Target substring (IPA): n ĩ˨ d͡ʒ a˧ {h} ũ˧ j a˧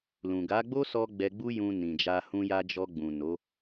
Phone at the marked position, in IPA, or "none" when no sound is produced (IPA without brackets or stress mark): h